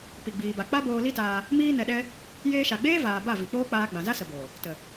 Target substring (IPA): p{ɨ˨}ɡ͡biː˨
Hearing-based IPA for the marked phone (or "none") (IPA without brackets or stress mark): i˨